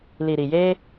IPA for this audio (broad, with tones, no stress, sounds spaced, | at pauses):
l i˨ ɾ i˨ j eː˦